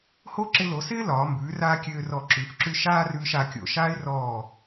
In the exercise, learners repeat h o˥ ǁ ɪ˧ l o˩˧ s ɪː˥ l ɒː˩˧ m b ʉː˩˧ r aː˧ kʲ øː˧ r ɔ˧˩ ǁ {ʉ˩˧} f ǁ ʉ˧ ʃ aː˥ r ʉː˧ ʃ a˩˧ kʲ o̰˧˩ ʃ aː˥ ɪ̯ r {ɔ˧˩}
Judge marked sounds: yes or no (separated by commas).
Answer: yes, no